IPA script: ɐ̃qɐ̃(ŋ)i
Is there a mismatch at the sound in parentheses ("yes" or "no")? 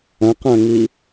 no